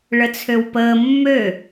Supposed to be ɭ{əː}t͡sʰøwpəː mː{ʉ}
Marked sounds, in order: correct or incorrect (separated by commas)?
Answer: incorrect, incorrect